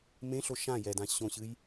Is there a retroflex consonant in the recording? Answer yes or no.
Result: no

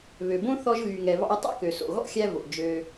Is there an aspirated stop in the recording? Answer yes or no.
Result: no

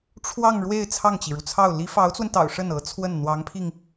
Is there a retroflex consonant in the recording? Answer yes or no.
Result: yes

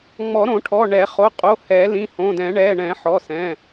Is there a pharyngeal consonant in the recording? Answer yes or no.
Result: yes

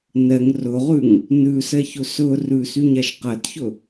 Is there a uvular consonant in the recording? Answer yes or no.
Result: yes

